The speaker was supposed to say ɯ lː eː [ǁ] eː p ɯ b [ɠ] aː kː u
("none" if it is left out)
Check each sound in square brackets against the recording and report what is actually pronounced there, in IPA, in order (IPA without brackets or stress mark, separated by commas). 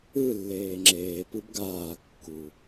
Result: ŋ͡ǁ, ɡ